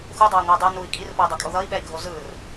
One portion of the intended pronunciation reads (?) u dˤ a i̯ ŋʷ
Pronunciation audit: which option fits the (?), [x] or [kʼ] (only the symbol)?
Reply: x